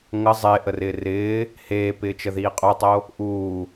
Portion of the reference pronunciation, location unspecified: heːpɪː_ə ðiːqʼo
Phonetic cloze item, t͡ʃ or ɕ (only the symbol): t͡ʃ